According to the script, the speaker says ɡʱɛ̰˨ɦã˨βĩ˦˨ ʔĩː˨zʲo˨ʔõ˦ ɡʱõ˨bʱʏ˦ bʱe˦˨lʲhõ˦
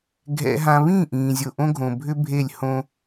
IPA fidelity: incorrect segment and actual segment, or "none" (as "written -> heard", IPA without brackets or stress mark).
none